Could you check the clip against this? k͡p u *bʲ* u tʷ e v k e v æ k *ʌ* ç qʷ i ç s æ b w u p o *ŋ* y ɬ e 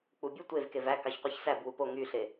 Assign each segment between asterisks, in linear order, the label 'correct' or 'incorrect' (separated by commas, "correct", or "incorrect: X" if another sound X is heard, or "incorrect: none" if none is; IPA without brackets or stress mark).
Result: correct, incorrect: ɑ, correct